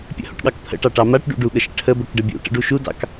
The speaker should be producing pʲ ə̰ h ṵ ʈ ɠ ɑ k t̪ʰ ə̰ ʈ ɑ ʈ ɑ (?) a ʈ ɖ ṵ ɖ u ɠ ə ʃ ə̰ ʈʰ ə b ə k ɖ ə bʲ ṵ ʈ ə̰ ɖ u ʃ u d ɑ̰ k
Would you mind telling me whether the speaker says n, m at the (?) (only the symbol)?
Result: m